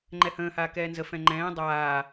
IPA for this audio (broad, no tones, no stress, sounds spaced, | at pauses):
ŋ͡ǃ ɛ h ə̃ː h aː k ɛː n z ə f ɛ̃ ŋ͡ǃ ɛ̃ː dˤ aː